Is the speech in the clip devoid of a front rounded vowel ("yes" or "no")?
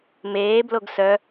no